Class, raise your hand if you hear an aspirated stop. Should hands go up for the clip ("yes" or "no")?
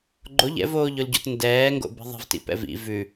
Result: no